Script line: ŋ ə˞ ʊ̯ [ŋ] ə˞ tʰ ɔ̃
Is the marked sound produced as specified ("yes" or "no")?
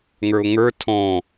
yes